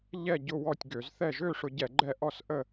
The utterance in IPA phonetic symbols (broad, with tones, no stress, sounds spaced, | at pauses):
ʎ ɛ˦˨ ɟ ʊ˦˨ w ɔ˦˨ tʲ ɡ ø˧˩˧ z θ ɛ˦˨ ʒ ø˦˨ ʂ ʊ˧˩˧ ɟ ɛ˧˩˧ ɡ͡ǃ ɛ˦˨ ʔ ɔ˦˨ s ʔ ə˦˨